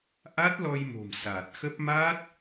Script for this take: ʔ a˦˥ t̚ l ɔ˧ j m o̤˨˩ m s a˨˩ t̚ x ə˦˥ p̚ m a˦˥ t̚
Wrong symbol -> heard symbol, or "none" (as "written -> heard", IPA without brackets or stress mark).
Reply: none